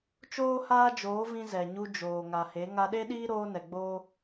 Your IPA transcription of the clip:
t͡ʃ oː˦ h aː˦ d͡ʒ oː˨˦ v ĩ˧ z ɛ˨ ɲ u˧ d͡ʒ oː˨ ŋ a˨ h e˨˦ ŋ a˧ ɗ e˦ ɗ iː˦ ɾ oː˧ n ɛ˨ ɡ͡b oː˦

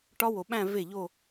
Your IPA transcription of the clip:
ʈ ɒ˦˥ w o˨ ɓ æ̃˥˧ v e˥˩ ʎ o˥˧

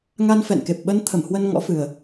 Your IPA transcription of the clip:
ŋ a˧ n f ɛ̰˧˨ n k e˨˩ p̚ ɓ ə˧ n t̪ʰ ə˧˩ m h w ə˧ n ŋ ɔ̰˧˥ f ɨ˨˩ ə̯

